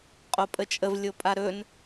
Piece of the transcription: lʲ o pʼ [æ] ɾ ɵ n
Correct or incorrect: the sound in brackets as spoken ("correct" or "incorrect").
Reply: incorrect